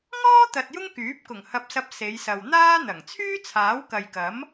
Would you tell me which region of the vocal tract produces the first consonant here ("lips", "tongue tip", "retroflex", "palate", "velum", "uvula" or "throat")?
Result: velum